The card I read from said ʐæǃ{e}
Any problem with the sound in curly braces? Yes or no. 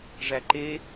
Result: no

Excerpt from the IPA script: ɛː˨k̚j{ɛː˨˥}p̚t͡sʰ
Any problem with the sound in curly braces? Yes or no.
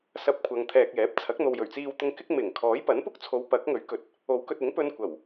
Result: no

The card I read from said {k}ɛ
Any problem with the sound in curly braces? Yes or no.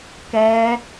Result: no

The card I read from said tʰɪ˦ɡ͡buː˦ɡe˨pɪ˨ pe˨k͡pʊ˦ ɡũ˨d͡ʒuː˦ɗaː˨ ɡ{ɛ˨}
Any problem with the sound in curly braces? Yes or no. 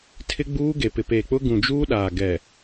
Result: no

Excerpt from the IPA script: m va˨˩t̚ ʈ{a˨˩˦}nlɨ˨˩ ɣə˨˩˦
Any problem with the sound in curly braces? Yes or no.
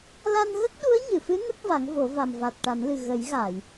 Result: no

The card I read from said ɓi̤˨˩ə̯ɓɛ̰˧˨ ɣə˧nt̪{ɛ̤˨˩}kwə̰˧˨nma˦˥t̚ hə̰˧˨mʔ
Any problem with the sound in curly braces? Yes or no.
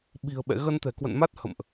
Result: no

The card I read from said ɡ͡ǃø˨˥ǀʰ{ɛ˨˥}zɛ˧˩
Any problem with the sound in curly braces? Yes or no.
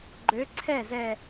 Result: yes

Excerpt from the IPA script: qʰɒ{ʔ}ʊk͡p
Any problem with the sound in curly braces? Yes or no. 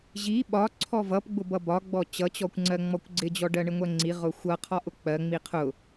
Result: no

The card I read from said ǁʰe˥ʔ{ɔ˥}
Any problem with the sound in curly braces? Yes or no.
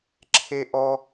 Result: no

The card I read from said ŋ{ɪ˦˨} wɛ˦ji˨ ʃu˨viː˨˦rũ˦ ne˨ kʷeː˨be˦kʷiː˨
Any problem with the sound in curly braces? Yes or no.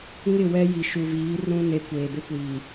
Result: no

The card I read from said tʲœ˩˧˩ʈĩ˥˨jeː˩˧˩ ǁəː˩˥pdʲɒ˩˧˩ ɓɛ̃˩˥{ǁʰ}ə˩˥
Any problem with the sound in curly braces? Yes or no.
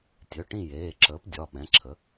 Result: no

